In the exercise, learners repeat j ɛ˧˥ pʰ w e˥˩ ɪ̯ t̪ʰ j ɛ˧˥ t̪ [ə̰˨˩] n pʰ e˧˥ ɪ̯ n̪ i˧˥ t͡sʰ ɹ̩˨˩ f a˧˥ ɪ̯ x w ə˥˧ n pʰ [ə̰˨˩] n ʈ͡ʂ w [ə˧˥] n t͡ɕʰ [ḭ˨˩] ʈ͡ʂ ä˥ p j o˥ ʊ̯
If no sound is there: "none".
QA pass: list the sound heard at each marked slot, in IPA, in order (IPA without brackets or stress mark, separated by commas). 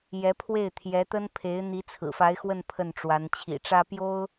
ə˥, ə˥˩, a˧˥, ḭ˨˩